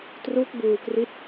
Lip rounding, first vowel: rounded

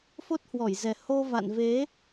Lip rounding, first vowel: rounded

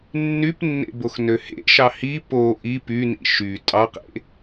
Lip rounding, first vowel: rounded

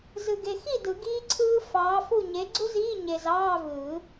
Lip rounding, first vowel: unrounded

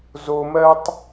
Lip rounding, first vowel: rounded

